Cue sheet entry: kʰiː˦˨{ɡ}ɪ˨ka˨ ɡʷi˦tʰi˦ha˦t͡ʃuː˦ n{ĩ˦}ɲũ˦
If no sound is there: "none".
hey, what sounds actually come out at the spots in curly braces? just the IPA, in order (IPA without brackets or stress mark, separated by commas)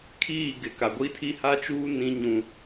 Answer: ɡ, ĩ˦